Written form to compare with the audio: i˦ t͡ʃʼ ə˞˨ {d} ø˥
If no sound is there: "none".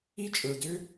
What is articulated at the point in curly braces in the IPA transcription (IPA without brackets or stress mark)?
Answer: d